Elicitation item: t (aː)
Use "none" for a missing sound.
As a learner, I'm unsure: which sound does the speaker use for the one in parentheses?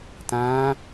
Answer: ãː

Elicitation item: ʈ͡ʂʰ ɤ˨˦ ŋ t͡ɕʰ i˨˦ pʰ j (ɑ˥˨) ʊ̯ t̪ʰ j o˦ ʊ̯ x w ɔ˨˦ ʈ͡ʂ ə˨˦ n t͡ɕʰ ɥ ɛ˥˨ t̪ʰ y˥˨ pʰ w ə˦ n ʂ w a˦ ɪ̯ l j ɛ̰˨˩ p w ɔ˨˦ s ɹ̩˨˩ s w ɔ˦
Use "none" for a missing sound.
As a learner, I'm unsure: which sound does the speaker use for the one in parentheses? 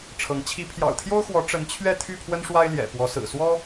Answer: ɑ̰˨˩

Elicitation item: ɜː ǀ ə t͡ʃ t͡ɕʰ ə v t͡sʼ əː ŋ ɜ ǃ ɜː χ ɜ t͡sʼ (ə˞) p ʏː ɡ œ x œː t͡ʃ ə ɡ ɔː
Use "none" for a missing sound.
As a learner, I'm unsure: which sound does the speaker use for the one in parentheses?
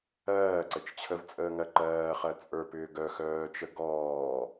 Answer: ə˞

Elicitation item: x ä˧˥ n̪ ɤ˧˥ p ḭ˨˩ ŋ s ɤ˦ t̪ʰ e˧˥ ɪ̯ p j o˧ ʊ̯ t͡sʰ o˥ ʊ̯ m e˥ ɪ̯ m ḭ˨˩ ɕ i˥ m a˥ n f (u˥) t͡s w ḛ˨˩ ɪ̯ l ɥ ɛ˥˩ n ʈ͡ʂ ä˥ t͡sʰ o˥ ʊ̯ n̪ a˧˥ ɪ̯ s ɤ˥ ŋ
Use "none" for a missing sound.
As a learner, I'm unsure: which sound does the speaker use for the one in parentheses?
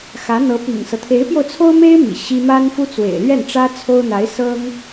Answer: u˥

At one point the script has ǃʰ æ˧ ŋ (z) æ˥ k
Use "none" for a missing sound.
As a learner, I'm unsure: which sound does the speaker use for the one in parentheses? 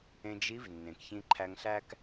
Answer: ɬ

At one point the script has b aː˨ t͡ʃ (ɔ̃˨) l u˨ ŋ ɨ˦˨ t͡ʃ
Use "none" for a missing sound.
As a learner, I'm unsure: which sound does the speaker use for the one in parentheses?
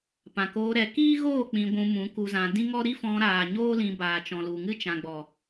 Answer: ɔ̃˨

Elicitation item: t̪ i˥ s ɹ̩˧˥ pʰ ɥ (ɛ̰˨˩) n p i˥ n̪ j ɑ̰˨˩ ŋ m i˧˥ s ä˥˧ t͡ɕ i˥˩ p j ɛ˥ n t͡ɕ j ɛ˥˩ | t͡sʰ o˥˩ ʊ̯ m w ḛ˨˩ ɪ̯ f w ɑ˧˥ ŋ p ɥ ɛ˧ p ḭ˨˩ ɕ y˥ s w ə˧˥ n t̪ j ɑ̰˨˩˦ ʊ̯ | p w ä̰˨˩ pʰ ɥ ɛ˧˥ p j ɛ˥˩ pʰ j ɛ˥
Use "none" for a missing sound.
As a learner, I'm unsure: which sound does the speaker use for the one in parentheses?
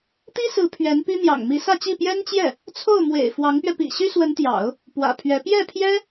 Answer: ɛ˧˥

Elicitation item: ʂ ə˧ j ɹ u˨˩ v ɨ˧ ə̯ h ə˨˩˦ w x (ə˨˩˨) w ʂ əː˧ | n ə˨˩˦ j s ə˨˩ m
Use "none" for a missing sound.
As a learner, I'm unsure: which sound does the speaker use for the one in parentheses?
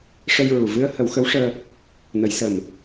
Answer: ə˧˥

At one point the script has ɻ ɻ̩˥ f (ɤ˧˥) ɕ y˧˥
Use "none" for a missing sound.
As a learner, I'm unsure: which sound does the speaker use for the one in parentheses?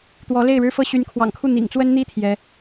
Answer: ɤ˥˩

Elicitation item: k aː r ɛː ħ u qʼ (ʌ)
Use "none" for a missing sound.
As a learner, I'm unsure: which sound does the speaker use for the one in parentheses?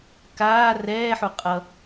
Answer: ʌ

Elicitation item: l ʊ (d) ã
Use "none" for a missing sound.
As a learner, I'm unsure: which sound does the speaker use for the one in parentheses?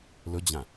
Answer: d͡ʑ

